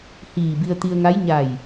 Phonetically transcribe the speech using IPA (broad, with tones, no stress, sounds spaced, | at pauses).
h iː˧˩ b i˧ ə̯ t̪ i˧ ə̯ ŋ a˧˥ j ɲ a˧˩ j